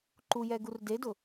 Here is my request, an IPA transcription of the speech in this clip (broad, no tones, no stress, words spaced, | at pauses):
ǃujɛɡur dedʊ